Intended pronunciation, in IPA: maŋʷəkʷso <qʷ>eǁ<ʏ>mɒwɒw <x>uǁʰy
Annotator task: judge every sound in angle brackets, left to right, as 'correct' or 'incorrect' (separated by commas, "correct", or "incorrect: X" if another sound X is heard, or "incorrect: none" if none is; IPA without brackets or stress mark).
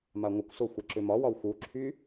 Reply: incorrect: xʷ, correct, correct